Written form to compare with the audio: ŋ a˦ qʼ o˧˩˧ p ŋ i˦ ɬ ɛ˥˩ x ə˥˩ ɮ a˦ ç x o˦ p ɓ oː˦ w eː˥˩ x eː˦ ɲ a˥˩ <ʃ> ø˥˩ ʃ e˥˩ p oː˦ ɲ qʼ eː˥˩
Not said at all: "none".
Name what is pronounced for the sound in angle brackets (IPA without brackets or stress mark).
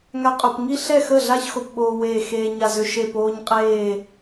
z